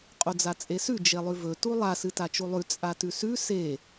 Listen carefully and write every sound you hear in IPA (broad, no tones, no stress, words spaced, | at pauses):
qʼod͡zat͡sʼesʉ d͡ʒelˠʉvɵ tulˠa sɨtat͡ʃulˠʉ t͡sʼatʉsʉ se